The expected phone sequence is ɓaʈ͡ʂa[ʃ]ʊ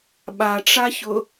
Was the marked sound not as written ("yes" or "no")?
yes